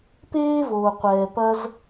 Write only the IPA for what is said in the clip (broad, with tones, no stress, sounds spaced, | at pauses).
p eː˥ v oː˩ qʷ ɛː˩ p ɐ˥ z